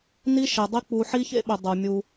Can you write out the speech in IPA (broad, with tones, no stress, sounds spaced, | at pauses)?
n i˦ ʃ e˨ dˤ i˦ k͡p u˨ ħ i˦ ç ḛ˦ ɓ ʏ˨ dˤ u˨ mʲ u˦